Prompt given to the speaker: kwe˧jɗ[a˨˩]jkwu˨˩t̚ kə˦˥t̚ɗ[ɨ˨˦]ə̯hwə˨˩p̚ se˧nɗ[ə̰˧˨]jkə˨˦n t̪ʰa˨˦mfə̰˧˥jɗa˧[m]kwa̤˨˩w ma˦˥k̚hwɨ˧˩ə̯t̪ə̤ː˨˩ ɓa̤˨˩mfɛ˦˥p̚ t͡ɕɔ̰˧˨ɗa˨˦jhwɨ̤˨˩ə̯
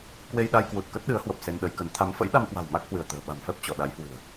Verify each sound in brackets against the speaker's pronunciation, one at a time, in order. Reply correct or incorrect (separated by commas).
incorrect, correct, incorrect, correct